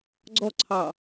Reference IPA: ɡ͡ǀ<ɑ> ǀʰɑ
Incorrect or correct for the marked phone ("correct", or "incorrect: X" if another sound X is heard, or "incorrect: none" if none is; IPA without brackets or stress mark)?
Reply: incorrect: ɔ